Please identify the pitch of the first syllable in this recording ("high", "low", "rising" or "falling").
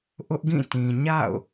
high